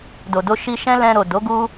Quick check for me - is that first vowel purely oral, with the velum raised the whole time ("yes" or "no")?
yes